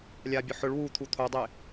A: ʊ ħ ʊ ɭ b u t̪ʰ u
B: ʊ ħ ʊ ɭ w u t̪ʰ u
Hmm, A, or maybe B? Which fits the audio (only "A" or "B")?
B